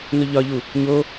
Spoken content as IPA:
n o ʎ ɒ ʎ u | ɲ o

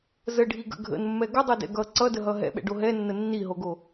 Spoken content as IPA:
z ə ɖʱ i ɡ ə̰ ɡʱ ə̰ n mː ɛ ɡ ə dˤ o d ɛ̰ ɡ ʌ ǀ ʌ d ə ɦ ʌ ɦ ɛ̰ ɓ ɛ̰ ɖ o ɦ ɛ nː ə nː i ɦ o ɡ o

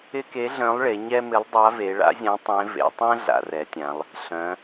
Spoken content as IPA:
ɪ˥ k e˧˥ ɮ œ̃˧˥ lˠ ɭ e˩˧ ɲ ɛ˥ m ɪ˧˥ lˠ dˤ a˧˥ v e˩˧ ɭ a̰˧˥ zʲ ã˧˥ tˤ ẽ˧˥ v ḛ˩˧ tˤ ɛ̃˥ ɮ a̰˩˧ r ɛ˩˧ tʲ ã˩˧ lˠ | ɬ œ̃˩˧

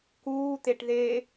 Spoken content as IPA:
k uː t̪ e ʈ ð e

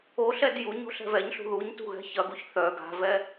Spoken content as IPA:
o ɬ ɛ d j u ɲ o̤ ɬ ɛ̤ v ɛ ɲ ɬ ṳ ð u ɲ t ṳ ɣ ɛ̤ ç ɐ ɡ u ç θ œ ɡ a̤ v ɛ

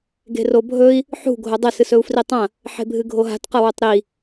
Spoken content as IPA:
ɡ e̤ r o bʱ ɵ i̯ | ħ ṳ ɡʱ o dˤ e s ɨ s ɵ u̯ f r i tˤ ɐ̃ | ħ e̤ bʱ ɨ ɡʱ o ɦ a̤ t q ɐ w o tˤ ɾ i

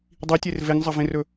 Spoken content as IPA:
dˤ i tʲ e r v e ŋ zˤ ɐ v ẽ r ɵ

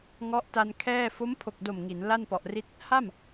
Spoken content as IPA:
ŋ ɔ˦˥ ʔ t a˧ n kʰ ɛː˥˩ f o˦˥ m pʰ o˨˩ k̚ d o˨˩ m ŋ i˩˦ n l a˥˩ n p ɔ˨˩ ʔ r i˦˥ t̚ | h a˥˩ m

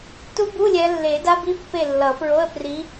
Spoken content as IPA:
t u˦˥ b u˧˥˧ lʲ ɛ˨˦ lː e˨˩˦ d a˦˥ b i˦˥ pː e˦˨ lː ʌ˨˩˦ p ɹ o˧˥˧ ə̯ p r i˨˦

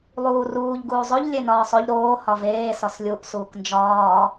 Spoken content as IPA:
lˠ uː r uː ʎ ɡ uː zˤ o ʎ lʲ e n ɒː sˤ o ʎ ɾ oː h ɒ v eː s ɒ s lʲ u ʔ s uː k n d͡ʒ ɒː

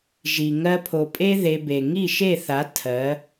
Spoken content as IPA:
ʒ i˨ ŋ ɜ˧ pʰ o˨ pʼ e˦ ð e˧ b e˨ ŋ i˦˨ ʃ e˦˨ θ a˨˦ tʰ ɜ˨˦

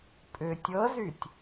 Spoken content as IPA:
pʼ ʏ tʲ ɤ z y tʲ

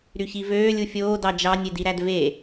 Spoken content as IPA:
ɾ y ç i v øː lʲ u fʲ oː d ɑ d͡ʒ ɑ nʲ e d i ɾ æ d v e

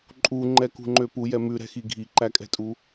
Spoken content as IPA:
ǃʼ u ŋ͡ǃ ɛ k ṳ ŋ͡ǃ ø p u j ɛ m ʉ ɾ ɛ̤ x i ɡʱ i ǃ æ kʼ ɛ̤ tʼ u

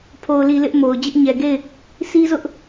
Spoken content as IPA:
pʰ o˨ ʊ̯ l i˨ l ɪ˦ ʔ m o˨ ʊ̯ d͡ʑ ɪ˦ ʔ ɲ ɛ˨ ɡ e˦˨ ɪ̯ | s i˦ z ʊ˦ ʔ

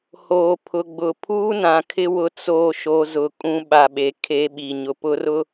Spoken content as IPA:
h oː˨ pʰ ʊ˨ ɡ͡b ʊ˨ pʰ uː˦ n ã˨ kʰ ɪ˦ w ʊ˦ t͡s oː˦˨ ʃ o˦ z ʊ˨ kʼ ũ˦ ɓ a˨ ɓ e˨ kʰ e˦ ɓ i˨ ɲ ʊ˨ p ʊ˦ r ʊ˦

